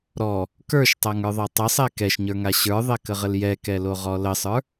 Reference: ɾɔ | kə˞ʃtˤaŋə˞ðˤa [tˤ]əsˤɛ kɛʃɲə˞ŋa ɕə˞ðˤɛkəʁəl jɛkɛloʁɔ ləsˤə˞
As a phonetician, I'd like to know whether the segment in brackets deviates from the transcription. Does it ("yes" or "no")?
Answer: no